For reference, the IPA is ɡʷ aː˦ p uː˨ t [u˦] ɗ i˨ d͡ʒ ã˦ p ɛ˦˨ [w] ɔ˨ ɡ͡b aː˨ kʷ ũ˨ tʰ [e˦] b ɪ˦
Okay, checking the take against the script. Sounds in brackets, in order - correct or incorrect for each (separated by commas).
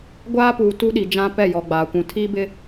correct, incorrect, incorrect